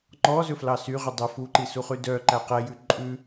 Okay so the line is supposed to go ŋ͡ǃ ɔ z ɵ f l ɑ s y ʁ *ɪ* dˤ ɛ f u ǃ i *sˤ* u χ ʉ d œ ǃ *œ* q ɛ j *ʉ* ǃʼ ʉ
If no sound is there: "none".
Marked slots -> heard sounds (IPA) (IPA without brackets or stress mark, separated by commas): y, s, æ, ʉ